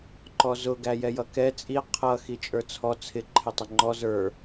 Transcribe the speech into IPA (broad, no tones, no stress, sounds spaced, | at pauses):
ǃ ɔ z ʊ ɡ æ j ɛ j ʌ k ɛ t͡sʼ i qʰ ʌ x i t͡ʃʼ ə˞ t͡sʰ ɔ t͡sʰ ɪ ǃʰ ɪ tˤ ə ŋ͡ǃ ɔ z ə˞